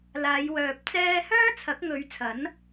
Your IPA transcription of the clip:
l aː˨˧ j w œː˨ p̚ t͡s ɛː˧ h œː˥ t͡sʰ ɐ˨˥ k̚ ŋ ɵ˨˧ ɥ t͡sʰ ɐ˨˥ n

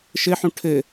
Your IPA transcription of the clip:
ʃ ɘ ħ ũ ʈʰ ɘ

